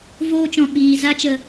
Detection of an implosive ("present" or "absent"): present